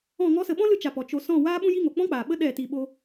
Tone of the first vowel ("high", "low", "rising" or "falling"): falling